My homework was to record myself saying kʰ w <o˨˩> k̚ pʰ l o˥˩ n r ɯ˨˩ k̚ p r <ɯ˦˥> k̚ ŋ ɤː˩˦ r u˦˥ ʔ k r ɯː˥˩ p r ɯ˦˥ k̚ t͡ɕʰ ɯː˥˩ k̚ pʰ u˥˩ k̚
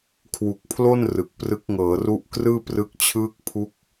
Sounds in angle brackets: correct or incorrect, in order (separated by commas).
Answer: incorrect, correct